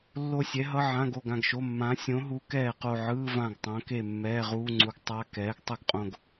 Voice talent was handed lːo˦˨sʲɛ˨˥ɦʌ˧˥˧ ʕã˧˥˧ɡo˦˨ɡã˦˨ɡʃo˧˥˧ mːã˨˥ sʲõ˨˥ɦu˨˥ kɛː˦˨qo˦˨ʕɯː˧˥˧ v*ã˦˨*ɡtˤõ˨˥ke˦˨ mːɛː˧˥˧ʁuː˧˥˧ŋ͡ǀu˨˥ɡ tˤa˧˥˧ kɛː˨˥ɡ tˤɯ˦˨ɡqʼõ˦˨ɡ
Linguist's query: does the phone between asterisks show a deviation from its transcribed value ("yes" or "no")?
no